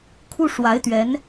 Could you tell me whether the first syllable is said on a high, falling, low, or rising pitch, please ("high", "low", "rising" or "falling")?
high